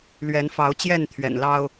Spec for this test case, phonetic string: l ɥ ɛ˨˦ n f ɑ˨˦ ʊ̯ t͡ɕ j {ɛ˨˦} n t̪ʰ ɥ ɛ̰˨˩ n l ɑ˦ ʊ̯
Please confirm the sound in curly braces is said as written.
no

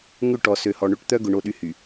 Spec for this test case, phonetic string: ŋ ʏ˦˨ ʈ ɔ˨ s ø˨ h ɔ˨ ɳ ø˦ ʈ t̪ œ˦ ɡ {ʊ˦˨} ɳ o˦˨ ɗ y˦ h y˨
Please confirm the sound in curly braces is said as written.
no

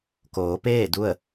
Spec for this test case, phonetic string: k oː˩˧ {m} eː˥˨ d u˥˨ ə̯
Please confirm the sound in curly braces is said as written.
no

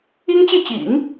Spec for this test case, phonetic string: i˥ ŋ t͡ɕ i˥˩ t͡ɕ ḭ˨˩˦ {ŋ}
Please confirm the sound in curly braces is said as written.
yes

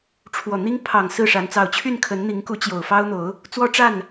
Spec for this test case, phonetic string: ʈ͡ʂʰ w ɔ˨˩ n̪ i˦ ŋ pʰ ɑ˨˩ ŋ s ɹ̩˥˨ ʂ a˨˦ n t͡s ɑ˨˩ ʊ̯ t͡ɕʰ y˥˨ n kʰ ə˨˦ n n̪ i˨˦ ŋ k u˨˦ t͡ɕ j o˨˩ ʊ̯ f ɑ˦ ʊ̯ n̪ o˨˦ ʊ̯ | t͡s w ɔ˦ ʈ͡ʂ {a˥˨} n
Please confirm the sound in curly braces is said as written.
yes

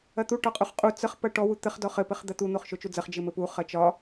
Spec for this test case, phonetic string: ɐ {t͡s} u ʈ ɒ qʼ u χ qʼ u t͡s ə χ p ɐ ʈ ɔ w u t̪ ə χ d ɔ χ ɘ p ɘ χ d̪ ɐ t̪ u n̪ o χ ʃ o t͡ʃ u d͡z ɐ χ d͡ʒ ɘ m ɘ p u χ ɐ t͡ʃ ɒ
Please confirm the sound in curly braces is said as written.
no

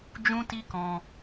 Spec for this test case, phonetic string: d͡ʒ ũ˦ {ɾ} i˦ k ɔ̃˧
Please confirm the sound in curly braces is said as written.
no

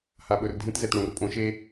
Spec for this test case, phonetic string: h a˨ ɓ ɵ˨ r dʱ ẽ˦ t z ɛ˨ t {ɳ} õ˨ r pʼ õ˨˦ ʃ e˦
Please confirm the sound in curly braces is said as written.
yes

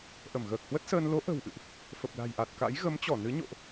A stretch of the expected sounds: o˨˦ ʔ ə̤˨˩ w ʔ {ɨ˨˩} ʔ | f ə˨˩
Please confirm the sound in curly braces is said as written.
no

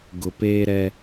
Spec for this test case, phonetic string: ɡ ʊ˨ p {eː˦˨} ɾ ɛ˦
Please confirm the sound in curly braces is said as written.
no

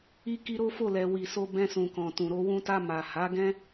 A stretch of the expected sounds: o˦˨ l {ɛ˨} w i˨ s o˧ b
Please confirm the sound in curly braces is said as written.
yes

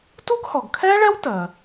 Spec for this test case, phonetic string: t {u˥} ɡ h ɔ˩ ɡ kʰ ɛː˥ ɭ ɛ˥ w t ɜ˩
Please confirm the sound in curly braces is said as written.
yes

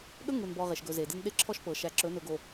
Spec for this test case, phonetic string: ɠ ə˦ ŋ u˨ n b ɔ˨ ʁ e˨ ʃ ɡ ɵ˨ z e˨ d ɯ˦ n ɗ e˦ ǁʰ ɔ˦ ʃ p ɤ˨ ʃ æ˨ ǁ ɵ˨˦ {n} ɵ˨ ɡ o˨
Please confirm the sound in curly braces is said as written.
yes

